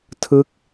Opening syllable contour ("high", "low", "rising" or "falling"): falling